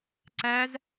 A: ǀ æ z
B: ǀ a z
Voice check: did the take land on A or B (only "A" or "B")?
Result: A